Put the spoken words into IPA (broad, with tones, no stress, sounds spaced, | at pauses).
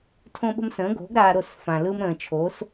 tʰ õ˦ ɓ ə̤˦ m s ə̃ː˨˥ ɡ o̤˨˥ ɡ ɾ aː˦ ɾ o˥˨ s f ã˨ l ɯ˦ m ɾ ə̃ː˨ t͡ʃʰ o˨˥ s